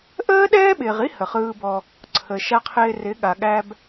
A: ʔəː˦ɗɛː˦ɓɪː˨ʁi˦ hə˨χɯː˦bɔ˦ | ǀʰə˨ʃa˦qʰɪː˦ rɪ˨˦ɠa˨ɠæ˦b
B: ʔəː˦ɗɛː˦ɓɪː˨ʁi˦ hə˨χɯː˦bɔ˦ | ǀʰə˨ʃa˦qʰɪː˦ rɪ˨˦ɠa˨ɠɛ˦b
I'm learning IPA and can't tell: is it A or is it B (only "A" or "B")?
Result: A